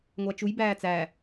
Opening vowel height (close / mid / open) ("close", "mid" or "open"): open